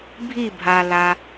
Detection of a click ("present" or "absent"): absent